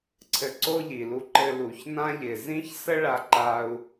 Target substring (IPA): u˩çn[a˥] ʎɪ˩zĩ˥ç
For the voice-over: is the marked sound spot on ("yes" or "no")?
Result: no